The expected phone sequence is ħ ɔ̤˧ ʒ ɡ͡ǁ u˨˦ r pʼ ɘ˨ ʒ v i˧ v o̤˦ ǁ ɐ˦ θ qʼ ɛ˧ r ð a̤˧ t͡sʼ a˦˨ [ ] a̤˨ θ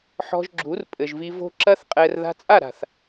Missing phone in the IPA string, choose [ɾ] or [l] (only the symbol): ɾ